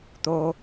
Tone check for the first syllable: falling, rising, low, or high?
low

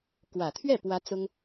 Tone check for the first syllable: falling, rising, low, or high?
low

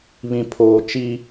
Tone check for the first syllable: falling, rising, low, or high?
low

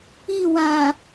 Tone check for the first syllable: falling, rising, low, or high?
falling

